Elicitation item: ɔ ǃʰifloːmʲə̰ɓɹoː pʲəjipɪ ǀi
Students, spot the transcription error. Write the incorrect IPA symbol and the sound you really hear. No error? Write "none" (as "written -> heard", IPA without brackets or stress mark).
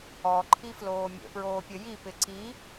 ɓ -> p